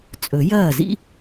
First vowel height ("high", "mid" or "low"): mid